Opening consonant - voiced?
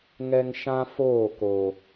yes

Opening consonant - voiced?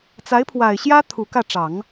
no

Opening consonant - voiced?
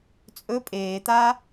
no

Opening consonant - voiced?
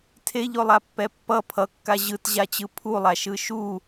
no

